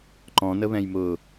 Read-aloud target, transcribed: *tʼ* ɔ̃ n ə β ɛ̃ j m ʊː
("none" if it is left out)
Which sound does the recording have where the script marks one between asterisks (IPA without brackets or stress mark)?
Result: ǃ